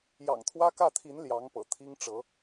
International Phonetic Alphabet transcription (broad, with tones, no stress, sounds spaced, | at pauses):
j ɑ̰˨˩ ŋ t̪ʰ w ä˥ k ä˥˩ t̪ʰ i˧˥ n l j ɑ˧˥ ŋ p ɤ̰˨˩ t̪ʰ i˥ ŋ ʈ͡ʂ ɤ˧˥